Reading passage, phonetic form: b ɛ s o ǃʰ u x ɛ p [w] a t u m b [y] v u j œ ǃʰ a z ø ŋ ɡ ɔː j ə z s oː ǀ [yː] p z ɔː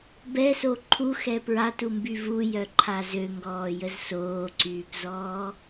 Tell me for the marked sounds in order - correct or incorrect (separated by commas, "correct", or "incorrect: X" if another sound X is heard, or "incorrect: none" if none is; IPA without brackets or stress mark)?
incorrect: ɹ, correct, correct